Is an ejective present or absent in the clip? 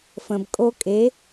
present